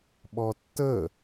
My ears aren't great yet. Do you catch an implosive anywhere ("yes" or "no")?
yes